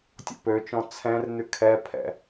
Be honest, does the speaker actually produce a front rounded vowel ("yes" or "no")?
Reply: yes